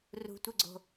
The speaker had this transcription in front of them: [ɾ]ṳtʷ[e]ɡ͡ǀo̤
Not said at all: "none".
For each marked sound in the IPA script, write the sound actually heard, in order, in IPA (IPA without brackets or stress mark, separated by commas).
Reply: r, e